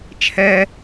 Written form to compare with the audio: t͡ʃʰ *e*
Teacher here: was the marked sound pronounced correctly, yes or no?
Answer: no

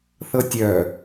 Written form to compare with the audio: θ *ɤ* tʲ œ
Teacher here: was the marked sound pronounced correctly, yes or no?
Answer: yes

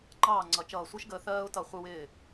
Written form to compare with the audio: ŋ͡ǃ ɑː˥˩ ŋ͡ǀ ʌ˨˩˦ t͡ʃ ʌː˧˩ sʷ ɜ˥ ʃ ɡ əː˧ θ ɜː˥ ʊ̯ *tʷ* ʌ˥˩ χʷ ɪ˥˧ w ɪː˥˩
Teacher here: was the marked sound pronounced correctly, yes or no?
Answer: no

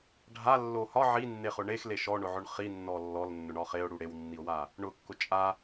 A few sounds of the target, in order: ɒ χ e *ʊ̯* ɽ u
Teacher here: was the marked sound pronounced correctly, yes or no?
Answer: yes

